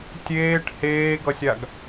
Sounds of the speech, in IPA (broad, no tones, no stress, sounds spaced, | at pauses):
tʲ eː ʈ h eː ɡ ʌ sʲ a ɡ